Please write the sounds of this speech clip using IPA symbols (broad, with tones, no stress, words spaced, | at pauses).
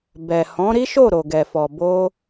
bɛ˨hɔ̃˨˦ɾi˦ʃo˦˨ ɾo˨ɡɛ˨fɔ˨ bo˧